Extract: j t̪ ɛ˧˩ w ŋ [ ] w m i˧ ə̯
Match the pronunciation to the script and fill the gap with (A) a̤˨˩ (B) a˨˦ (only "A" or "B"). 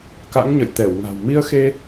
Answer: A